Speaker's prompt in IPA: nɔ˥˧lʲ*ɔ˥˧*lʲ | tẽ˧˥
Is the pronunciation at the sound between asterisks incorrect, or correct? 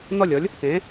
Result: incorrect